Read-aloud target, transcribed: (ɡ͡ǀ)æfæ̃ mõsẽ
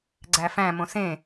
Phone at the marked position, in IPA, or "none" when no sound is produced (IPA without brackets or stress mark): ɡ͡ǀ